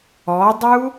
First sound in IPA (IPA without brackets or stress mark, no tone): ɔ